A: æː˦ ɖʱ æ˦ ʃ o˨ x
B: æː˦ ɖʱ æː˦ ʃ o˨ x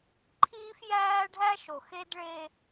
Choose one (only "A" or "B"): A